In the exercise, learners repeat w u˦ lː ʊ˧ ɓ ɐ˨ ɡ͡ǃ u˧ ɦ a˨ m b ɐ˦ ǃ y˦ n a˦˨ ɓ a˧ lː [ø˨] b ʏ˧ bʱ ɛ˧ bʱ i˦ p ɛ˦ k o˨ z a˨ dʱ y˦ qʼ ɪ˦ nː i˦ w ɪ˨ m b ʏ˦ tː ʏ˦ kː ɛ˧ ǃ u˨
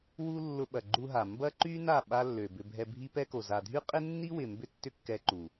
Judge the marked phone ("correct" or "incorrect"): correct